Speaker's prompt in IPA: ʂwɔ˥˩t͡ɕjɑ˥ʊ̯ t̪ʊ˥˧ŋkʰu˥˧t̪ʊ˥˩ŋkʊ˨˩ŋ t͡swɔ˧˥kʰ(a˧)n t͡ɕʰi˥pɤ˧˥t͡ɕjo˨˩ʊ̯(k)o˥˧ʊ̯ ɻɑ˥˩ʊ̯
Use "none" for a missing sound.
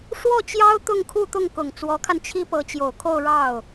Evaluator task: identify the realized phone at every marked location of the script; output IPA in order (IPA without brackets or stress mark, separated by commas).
a˧, kʰ